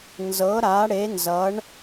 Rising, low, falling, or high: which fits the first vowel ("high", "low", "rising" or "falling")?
rising